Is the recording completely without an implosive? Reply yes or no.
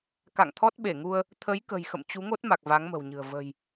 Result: no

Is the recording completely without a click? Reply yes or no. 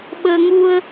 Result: yes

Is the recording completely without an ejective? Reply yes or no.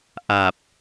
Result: yes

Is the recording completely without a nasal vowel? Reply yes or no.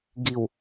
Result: yes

